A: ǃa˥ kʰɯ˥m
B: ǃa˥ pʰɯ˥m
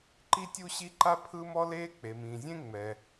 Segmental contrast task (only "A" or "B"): B